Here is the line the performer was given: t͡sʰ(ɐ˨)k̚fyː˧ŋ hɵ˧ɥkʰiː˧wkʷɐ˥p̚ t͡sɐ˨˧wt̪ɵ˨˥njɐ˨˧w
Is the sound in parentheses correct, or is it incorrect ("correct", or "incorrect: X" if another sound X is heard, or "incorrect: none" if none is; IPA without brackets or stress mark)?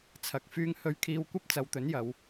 correct